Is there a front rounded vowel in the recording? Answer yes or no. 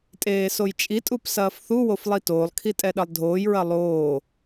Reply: no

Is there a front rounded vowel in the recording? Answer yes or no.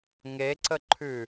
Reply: no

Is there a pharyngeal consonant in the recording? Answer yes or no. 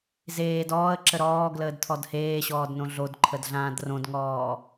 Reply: no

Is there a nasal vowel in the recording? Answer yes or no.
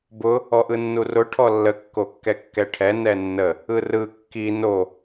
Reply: no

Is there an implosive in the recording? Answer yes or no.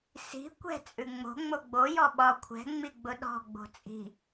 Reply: yes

